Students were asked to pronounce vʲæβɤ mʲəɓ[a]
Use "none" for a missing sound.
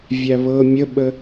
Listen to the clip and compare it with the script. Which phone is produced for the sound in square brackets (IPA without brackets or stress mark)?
ə